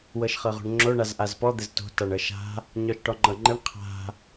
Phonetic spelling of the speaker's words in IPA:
wɤʃχɤʁo̤ɳŋ͡ǁo ɳazʔazpɔ d̪ɘzto̤ taɳɤʃa̤ | ɲɔʃʈɔŋ͡ǃɤŋ͡ǃɘɳ qʰa̤

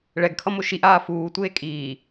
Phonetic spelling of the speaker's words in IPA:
ɭɛɡkʰʌmo ʃiʔaː fuːtʷeː kʼiː

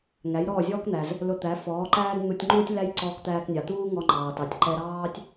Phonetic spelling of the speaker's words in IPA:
ŋæ˩˥jɾɔː˥˩zʲɔː˥kn̪æ˩z | lʊ˧t̪æ˩˥ fɔː˩˥ǃæː˥d n̪u˧tʲŋ͡ǃuː˥tʲ læ˥j ǀɔː˧kt̪æː˧knʲɑ˩ t̪uː˥ ŋɔ˧ŋ͡ǃɑː˩tɑ˩tʲ ǃɛ˧ɾɑː˥tʲ

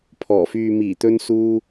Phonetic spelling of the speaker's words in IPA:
pʰɔː˨˩fyː˨miː˨˩t̪ɵ˧n suː˧

